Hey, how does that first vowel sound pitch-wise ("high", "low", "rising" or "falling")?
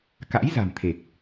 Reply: rising